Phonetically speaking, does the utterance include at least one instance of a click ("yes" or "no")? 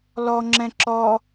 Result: yes